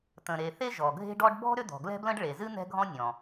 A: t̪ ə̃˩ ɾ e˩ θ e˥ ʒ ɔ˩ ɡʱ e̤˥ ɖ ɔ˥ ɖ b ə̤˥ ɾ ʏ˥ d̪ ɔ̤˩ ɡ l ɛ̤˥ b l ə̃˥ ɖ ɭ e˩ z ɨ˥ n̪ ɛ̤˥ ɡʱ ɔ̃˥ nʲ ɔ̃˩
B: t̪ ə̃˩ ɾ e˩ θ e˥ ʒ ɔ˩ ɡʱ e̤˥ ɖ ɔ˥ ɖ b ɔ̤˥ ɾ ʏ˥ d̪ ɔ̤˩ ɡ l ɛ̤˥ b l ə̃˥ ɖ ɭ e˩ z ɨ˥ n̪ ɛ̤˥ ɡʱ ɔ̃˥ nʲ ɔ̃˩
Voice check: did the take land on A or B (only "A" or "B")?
B